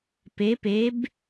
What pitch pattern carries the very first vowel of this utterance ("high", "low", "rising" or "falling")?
rising